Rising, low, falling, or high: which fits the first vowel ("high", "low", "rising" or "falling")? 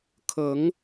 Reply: rising